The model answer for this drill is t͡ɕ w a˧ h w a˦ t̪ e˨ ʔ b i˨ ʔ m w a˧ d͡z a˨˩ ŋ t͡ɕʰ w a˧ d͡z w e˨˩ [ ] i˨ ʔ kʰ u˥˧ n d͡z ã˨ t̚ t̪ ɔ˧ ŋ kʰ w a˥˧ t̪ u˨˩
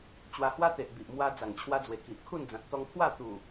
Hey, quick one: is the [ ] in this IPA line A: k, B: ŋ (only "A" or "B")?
A